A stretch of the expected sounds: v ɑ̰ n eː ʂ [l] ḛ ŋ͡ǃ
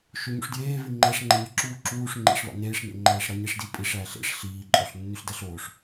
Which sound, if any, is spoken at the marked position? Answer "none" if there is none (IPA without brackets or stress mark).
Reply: n